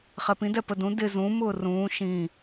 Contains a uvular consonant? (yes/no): yes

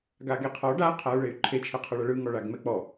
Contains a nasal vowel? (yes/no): no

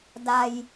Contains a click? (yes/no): no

